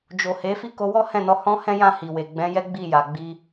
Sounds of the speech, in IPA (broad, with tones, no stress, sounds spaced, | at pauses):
d͡ʒ o˨ h e˨˦ f i˦ k o˧ w ɔ˦ h ɛ̃˦˨ n ɔ˧ h ɔ̃˦ h ɛ̃˦ j ã˦˨ h i˨ w e˨ ɡ͡b ɛ̃˨˦ j ɛ˦ ɡ͡b i˦˨ j a˨ ɡ͡b i˧